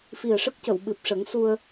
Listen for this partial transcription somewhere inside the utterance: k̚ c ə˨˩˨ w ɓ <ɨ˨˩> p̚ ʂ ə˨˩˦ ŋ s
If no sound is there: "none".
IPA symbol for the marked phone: ɨ˨˩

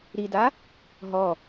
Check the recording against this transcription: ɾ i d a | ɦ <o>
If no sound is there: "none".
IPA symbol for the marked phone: ɔ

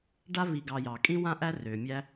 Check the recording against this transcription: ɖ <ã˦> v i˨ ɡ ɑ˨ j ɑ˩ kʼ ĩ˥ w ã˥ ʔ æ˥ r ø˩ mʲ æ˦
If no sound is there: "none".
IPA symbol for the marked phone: a˦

